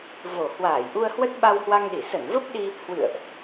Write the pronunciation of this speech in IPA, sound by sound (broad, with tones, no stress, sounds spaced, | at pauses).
v o˨˩ h w aː˧˩ j ʔ u˧ ə̯ h w ə˦˥ t̚ ɓ a˧ w h w a˧ ŋ ɗ i˧˩ s ə˧˩ n v ə˦˥ p̚ ɗ i˧ | h w ɨ̰˧˨ ə̯ ʔ